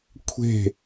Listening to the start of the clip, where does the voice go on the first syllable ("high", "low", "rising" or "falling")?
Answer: falling